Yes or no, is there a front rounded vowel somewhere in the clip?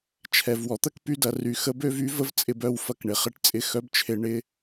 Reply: yes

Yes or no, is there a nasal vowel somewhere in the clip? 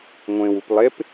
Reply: yes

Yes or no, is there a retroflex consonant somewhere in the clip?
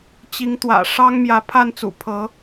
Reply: yes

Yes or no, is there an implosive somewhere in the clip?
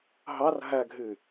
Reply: no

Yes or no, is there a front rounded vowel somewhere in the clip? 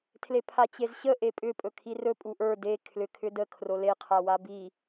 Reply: yes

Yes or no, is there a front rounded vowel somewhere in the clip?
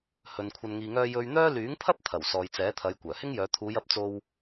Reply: yes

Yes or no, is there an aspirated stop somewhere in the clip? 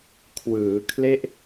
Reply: yes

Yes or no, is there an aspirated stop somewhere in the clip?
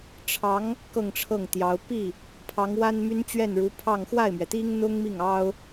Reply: yes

